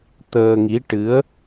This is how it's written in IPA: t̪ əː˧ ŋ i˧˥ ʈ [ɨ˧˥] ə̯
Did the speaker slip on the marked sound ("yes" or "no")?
no